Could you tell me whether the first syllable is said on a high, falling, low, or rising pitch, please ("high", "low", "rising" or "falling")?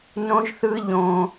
high